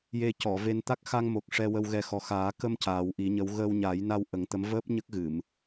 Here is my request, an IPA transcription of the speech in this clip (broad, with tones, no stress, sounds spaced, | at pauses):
j e˧ c ɔ˨˩˨ v e˧ n t̪ a˦˥ k̚ x a˧ ŋ m o˨˩ k̚ ʂ ɛ˧ w ə˧ w ɣ ɛ˧ x ɔ˨˩ x aː˨˩˦ k ə˧ m c aː˨˩˦ w ʔ i˨˩˦ ɲ ə˧˥ w ɣ əː˧ w ɲ a˨˩˦ j n a˧ w ʔ ə˨˩˦ ŋ t̪ ə˧˥ m v əː˦˥ p̚ ɲ ə˦˥ k̚ ɣ ɨ˨˩˨ m